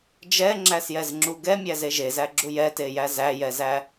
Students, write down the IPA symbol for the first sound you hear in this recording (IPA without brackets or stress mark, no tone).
d͡ʒ